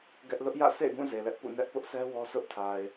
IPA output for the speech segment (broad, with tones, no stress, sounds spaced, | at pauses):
ɡ ɛ˦ ʔ l ʊ˦ ʔ j ä̰˦˨ s ḛ˦˨ ɪ̯ ɡ ũ˦˨ z e˨ l ɛ˦ ʔ p ṵ˦˨ n ɛ˦ ʔ p ʊ˦ ʔ s ɛ˦ w ɔ˦ s ʊ˦ ʔ tʰ a˨ ɪ̯